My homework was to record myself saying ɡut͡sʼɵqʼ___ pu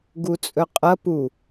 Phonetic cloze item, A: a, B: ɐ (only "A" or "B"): B